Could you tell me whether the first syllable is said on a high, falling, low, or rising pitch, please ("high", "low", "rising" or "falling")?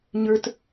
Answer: low